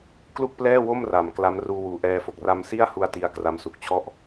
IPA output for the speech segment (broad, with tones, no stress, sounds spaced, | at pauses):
k l u˥˩ k̚ p l ɛː˥˩ w o˥˩ m r a˨˩ m k l a˦˥ m r uː˧ w uː˨˩ ʔ ɛː˧ f o˨˩ k̚ r a˧ m s i˥˩ a̯ h u˧ a̯ t i˦˥ a̯ k r a˦˥ m s u˨˩ k̚ t͡ɕʰ ɔ˥˩ ʔ